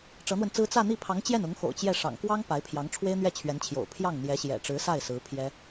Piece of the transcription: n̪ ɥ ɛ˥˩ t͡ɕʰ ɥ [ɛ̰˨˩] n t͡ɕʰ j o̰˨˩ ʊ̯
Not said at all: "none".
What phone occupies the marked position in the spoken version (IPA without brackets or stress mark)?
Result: ɛ˧˥